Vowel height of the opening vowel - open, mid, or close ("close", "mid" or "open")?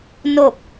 mid